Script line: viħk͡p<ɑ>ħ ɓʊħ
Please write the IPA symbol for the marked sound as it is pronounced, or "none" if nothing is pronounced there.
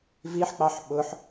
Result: ɑ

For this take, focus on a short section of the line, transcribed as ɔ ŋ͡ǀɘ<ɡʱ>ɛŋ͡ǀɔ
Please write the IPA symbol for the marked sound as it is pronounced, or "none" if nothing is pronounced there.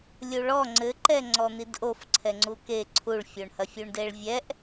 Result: ǃ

